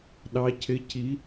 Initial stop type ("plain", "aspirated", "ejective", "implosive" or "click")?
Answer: implosive